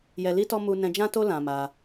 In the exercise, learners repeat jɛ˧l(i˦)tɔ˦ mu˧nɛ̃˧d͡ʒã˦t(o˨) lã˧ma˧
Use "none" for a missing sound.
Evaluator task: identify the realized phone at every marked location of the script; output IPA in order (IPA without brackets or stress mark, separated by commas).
i˦, o˦